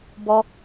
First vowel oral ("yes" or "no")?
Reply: yes